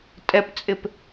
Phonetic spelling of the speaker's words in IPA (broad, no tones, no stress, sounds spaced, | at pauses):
tʼ ɛ p t͡sʼ ɪ p